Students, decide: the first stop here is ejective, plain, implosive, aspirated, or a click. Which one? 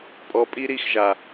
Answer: ejective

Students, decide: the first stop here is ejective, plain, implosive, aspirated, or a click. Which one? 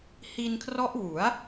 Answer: aspirated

